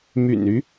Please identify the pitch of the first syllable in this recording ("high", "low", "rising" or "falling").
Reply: low